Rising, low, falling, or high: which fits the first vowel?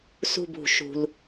falling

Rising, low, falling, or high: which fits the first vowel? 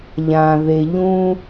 low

